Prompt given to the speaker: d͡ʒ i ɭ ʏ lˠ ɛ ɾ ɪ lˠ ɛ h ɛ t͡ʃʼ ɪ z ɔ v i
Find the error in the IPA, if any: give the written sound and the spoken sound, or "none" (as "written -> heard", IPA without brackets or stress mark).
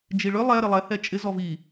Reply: none